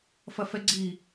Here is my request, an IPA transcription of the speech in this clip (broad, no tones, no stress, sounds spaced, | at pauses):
f ɐ f ɛ ɡ͡ǀ i